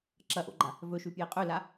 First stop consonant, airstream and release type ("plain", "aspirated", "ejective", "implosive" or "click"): click